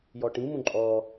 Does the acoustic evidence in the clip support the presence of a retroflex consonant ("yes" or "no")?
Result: yes